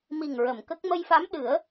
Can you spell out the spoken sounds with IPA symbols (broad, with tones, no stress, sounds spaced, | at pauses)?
m i˨˩ ŋ ɹ ə˨˩˨ m k ə˦˥ k̚ m ə˧ j f a˧˥ m ɗ ɨ˨˩˦ ə̯